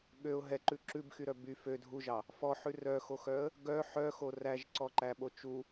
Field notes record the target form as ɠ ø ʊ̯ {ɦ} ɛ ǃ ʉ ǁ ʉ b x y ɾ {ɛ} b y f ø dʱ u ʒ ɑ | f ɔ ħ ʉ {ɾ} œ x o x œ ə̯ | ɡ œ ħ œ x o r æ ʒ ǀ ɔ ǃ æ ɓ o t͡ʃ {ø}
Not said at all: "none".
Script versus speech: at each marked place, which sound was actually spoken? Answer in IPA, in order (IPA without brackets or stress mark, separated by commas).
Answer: ɦ, œ, r, u